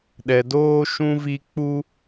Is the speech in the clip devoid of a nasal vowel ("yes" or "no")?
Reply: no